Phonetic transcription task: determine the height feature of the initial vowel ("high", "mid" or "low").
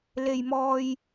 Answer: mid